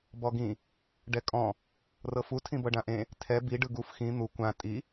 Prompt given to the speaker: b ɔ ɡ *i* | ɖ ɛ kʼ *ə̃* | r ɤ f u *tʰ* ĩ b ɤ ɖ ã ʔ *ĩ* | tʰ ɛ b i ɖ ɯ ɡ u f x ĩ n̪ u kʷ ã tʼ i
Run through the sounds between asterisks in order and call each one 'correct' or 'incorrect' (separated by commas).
incorrect, incorrect, correct, incorrect